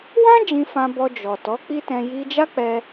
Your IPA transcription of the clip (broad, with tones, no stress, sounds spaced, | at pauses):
w ã˦ d͡ʒ ĩ˧ f ã˧ b ɔ˧ d͡ʒ ɔ˨ t ɔ˨˦ k͡p i˦ t ɛ̃˧ j i˧ d͡ʒ a˦ k͡p ɛ˧